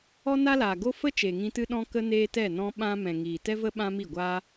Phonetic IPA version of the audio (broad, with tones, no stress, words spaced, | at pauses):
ɔ˦na˦laː˨ɡo˦ fə˦ t͡ʃeː˨ŋĩ˧ tɨ˧ɗɔ̃˧ kə˧ neː˦tɛ˦˨nɔ̃˦ ɓã˦ mɛ̃˨ŋiː˨tɛ˦və˦ ɓã˦mi˦˨ɡʷaː˦